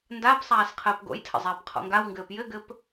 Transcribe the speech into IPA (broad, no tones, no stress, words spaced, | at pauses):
ndap sˤaːsqʰəːpɡo̰jtʰə̰ zˤɛːpqʰɔ̰ŋɡawŋɡɘːp jɘɡɘp